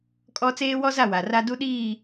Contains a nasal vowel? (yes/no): no